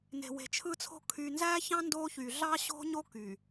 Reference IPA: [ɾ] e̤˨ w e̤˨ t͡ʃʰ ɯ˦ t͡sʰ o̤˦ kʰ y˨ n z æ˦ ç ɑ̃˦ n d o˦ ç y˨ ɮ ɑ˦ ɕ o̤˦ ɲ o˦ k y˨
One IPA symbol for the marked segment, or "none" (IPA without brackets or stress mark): n